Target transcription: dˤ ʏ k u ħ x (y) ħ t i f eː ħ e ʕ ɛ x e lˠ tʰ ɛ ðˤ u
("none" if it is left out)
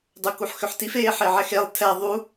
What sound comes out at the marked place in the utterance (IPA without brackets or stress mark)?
ʏ